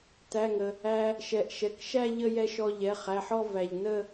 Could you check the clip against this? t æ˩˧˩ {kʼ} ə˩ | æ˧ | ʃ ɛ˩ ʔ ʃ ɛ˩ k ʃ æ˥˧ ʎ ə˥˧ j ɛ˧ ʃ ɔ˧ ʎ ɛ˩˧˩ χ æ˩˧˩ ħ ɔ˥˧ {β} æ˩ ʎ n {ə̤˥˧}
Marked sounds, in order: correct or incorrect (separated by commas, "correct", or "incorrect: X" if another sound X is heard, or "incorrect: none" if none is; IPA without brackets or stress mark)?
incorrect: ŋ, incorrect: v, incorrect: ə˥˧